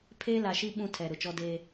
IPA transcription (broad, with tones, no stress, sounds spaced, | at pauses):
pʰ eː˦ l a˨ ʃ i˦ ɓ ũ˦ tʰ ɛ˨ ɾ ʊ˨ t͡ʃ ɔ˦ d eː˦